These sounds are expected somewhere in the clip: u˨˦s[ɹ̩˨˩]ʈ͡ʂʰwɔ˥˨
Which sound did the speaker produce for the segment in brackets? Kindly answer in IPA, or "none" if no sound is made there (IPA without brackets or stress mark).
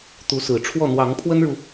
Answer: ɹ̩˨˩